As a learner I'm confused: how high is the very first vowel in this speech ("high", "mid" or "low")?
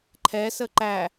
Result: mid